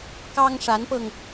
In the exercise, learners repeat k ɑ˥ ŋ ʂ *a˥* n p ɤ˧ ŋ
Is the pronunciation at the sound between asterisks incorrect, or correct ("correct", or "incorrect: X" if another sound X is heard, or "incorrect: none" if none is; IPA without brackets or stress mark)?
incorrect: a˧˥